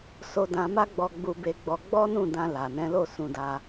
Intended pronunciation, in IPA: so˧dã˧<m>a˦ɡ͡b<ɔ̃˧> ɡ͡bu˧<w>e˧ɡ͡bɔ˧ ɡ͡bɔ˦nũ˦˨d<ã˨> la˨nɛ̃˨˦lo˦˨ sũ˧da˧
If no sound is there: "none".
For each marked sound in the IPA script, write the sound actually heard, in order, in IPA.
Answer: m, ɔ˧, b, ã˧

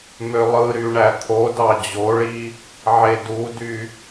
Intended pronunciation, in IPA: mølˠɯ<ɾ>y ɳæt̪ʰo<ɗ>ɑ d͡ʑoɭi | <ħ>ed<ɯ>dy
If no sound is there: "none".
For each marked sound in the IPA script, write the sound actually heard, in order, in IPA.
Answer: ɾ, d, ʕ, u

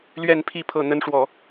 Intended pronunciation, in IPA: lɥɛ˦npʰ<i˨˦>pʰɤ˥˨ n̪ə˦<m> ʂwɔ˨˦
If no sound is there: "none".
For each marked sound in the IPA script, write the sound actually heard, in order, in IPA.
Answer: i˥˨, n

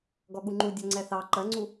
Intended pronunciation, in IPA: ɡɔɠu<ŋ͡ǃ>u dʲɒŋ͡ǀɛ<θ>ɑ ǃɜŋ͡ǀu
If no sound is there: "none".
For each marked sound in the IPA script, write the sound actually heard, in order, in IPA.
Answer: ŋ͡ǃ, θ

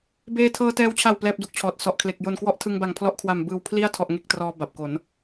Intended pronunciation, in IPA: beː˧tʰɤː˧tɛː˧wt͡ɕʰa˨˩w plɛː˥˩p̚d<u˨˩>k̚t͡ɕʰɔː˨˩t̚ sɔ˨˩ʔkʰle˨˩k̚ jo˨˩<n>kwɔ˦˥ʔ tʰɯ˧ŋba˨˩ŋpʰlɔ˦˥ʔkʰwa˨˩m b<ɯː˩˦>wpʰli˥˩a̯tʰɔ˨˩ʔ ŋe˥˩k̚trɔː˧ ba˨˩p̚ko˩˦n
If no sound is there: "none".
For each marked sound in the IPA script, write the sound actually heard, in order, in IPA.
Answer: u˦˥, n, ɯː˨˩

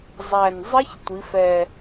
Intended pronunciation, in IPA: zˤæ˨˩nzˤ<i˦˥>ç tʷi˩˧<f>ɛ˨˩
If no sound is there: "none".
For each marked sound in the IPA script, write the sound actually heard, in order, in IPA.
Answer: ɪ˦˥, f

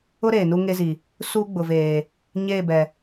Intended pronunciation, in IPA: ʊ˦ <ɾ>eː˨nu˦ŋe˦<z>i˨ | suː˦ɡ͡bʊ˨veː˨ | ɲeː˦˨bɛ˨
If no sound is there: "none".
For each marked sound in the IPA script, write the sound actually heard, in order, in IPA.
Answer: ɾ, z

